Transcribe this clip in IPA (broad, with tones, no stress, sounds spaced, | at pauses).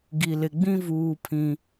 ɡ i˨ l ɪ˨ ɡ͡b ĩ˦ v uː˦ pʰ ĩ˦